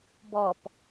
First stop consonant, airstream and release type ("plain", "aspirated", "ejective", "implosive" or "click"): plain